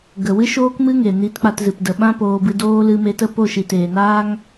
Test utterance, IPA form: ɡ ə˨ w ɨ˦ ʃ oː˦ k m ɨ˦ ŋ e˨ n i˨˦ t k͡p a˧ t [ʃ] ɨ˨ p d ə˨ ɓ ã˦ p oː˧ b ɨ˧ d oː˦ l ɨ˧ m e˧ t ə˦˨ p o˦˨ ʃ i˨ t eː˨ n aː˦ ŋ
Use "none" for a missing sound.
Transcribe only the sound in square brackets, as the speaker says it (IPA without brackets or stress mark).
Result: z